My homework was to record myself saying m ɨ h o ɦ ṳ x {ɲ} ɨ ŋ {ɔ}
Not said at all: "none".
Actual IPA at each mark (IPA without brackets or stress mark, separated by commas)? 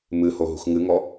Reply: ŋ, ɔ